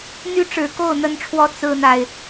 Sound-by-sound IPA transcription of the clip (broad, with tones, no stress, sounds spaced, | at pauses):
n̪ y˥ ʈ͡ʂ ɻ̩˨˩ k o˥˩ ʊ̯ n̪ ə˥ n ʈ͡ʂʰ w ɔ˥ t͡s ɹ̩˥ n̪ a˨ ɪ̯